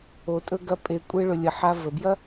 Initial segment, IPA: o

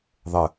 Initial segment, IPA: ðˤ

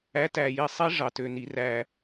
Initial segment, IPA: æ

